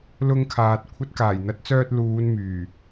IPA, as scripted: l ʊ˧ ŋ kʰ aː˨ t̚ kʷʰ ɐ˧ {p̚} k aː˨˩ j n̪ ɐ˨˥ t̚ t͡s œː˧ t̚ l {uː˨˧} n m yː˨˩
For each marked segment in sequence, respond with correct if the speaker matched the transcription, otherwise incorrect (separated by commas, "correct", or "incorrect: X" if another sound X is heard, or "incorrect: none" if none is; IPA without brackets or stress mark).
incorrect: t̚, correct